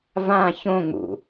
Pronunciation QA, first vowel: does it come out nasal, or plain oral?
nasal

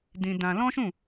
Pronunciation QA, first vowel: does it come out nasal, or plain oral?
nasal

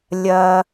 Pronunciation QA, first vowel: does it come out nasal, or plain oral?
oral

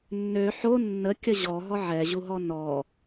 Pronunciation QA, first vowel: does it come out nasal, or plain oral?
oral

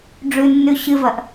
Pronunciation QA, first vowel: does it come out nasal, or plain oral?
oral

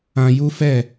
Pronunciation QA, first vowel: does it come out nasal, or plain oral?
nasal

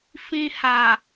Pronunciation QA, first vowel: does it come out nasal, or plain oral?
nasal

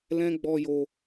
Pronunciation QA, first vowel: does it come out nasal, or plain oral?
nasal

